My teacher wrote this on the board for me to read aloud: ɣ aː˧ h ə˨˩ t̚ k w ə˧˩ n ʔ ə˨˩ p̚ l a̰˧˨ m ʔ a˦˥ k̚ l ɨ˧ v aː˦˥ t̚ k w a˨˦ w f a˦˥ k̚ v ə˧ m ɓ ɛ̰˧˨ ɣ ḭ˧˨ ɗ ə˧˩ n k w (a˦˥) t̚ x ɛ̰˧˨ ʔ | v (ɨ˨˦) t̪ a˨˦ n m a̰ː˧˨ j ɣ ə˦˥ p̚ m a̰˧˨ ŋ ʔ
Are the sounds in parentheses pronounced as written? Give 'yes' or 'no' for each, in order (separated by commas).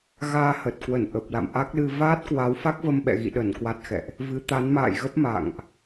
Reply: yes, yes